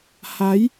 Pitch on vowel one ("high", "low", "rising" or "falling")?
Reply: rising